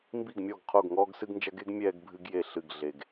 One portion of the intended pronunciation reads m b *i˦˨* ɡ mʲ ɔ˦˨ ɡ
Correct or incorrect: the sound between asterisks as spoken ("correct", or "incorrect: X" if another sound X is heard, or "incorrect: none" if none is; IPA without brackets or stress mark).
correct